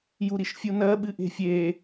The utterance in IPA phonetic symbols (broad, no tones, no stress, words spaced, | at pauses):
juɾiʃfʲunɜ ɓɨʔe̤fʲe